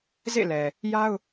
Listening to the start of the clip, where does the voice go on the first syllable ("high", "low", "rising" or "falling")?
falling